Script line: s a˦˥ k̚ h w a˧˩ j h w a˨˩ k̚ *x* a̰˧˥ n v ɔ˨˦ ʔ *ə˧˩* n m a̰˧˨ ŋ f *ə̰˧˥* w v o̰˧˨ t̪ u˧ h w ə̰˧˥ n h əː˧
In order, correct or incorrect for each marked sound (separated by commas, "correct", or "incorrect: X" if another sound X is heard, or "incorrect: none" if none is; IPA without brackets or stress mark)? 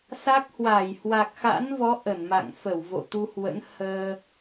correct, correct, incorrect: ə˧˩